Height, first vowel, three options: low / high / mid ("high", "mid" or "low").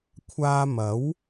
low